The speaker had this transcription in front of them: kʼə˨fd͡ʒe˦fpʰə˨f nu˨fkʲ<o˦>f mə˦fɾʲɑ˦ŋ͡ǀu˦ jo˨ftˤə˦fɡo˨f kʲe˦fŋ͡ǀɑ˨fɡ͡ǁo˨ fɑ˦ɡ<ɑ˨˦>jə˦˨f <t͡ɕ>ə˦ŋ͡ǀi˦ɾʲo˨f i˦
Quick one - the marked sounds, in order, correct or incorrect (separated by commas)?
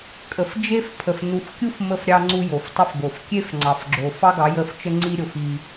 incorrect, correct, incorrect